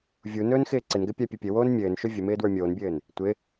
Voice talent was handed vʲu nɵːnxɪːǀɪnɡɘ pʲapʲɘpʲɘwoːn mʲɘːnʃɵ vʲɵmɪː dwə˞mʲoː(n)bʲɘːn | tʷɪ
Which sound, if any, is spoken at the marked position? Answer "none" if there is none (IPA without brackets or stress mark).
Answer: n